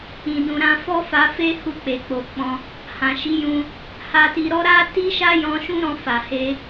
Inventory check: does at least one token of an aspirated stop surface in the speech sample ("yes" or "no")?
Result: no